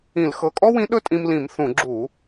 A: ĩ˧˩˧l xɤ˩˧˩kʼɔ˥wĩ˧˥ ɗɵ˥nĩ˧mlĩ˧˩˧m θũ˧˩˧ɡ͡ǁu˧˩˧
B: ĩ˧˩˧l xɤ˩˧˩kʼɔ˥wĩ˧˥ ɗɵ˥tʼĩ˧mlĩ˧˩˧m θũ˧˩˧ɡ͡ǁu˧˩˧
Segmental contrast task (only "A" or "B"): B